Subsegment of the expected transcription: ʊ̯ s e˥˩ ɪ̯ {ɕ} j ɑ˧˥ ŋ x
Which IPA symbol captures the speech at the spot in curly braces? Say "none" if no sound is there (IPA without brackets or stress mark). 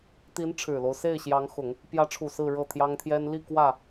ɕ